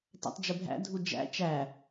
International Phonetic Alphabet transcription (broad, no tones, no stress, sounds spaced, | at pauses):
t æ̰ tˤ d͡ʒ ə bʱ æ̰ dʱ u d͡ʒ æ̰ t͡ʃ æ